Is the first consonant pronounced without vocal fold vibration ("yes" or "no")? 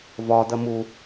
no